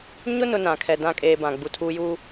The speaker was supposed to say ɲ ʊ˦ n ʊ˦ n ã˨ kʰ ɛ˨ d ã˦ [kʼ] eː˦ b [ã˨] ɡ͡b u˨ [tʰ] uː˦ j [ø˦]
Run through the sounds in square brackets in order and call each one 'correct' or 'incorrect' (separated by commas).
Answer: correct, correct, correct, incorrect